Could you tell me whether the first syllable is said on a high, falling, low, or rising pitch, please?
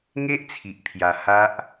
high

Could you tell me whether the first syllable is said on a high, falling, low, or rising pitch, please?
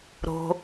low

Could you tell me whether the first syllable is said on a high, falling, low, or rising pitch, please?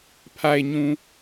low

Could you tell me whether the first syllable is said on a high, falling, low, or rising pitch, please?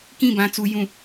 falling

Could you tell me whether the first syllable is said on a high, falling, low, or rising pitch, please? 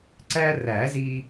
high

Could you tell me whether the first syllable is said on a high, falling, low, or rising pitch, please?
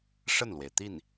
falling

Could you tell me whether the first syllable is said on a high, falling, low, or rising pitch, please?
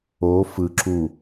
rising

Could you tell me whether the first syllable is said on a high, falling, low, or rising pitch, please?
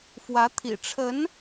rising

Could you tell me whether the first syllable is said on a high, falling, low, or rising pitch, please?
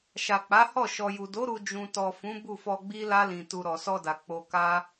low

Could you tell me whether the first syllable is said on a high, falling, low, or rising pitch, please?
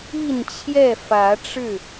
falling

